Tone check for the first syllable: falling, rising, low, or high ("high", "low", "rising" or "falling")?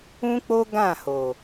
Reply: high